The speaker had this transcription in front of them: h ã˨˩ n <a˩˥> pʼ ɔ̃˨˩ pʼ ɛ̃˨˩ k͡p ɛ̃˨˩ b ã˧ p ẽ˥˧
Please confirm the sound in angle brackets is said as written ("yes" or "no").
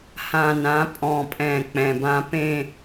no